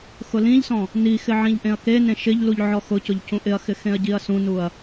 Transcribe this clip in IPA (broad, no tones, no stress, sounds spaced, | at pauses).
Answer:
x ʊ l ĩ ʎ s ɔ̃ | n i x ɪ ʕ ĩ ʎ ʔ ẽ ɐ̯ k e n ẽ ʃ ɪ ʎ l u ʎ ʕ ɔ x ʊ c ʊ ʎ c ũ ʔ ɪ ɐ̯ x ɪ x ẽ ɐ̯ ɟ i ɐ̯ s ũ n u ɐ̯